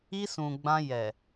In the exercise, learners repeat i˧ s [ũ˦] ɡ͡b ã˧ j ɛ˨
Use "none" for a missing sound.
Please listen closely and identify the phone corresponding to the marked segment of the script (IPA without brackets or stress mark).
ũ˨